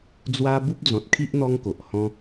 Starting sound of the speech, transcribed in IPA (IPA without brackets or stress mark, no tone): d͡z